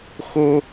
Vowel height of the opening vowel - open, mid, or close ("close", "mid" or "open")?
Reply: mid